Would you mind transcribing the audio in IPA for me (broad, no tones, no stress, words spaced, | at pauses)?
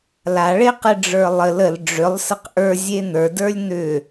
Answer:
laɭeqɘ ɖ͡ʐə˞lˠəl əl ɖ͡ʐʏlˠsəq ʔə˞ zʲen̪ə˞də˞lʲ n̪ʏ